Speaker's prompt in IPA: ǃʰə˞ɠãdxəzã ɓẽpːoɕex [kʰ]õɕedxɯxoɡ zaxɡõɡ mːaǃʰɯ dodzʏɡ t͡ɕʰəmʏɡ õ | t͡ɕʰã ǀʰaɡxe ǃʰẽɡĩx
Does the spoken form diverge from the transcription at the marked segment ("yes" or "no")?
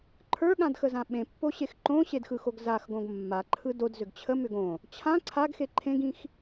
yes